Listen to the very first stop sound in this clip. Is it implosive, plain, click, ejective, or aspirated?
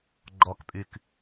click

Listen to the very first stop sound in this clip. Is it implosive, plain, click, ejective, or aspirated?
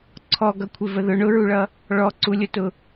click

